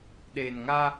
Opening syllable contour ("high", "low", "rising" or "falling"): low